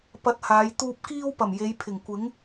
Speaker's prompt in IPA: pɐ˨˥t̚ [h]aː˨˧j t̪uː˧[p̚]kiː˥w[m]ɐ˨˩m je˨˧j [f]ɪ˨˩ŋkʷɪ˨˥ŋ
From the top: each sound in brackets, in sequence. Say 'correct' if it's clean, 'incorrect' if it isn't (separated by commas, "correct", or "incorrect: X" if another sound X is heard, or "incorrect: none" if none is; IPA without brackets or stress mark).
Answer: correct, correct, incorrect: p, incorrect: pʰ